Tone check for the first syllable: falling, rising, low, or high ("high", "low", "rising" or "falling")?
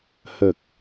low